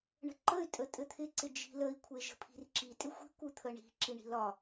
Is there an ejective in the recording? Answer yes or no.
yes